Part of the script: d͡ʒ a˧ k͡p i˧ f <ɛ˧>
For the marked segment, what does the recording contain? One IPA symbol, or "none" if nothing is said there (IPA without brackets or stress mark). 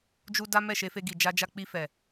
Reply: ɛ˨